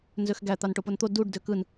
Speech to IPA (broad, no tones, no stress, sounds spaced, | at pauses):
n z ø x ɡ æ t̪ ɑ n ʈ o p o n t̪ o d u ɖ d ø k ɯ n